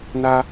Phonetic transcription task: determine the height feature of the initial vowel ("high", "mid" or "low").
low